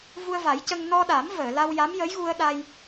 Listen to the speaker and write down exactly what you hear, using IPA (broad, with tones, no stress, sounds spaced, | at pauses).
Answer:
v u˧ ə̯ v a˨˩˦ j c ə˧ ŋ n ɔ˧ ɗ a˨˩˦ m v əː˨˩˨ l a˧ w j a˧˥ m j ə˧˥ j ɣ u˧ ə̯ ɗ a˧ j